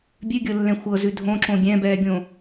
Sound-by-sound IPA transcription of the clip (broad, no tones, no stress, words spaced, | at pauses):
bʲʉɡʲɤlːɛ̃ xʷɤzʉ dʱõǁõ ɡʲɛ̃bɛːɡʲõ